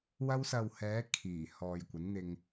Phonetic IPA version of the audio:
w ɐ˧ w s ɐ˨ w h ɛː˨˧ kʰ iː˨˩ h ɔː˨ j kʷ ɐ˨˥ n n̪ ɪ˧ ŋ

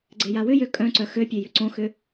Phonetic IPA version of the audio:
ɡ͡ǀ e j a w ʏ j ø kʼ œ̃ ǀ œ x ø pʲ e j ʏ ǀ õ x ʏ

